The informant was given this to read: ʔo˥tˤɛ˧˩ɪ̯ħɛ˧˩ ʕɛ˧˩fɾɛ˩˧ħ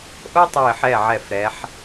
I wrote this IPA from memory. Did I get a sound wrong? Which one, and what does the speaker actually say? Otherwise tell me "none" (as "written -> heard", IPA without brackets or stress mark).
none